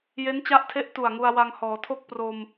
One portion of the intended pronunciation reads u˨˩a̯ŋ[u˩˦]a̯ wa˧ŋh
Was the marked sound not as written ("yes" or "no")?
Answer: yes